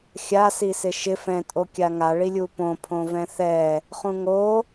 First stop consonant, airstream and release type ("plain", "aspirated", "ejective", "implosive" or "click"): ejective